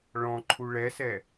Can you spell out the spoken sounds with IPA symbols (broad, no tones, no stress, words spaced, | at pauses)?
ɭɔ̃ǃʰu ɭɛsɛ